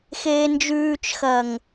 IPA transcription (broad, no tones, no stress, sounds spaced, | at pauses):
x eː n d͡ʒ ʉː t͡ʃ x ɐː ŋ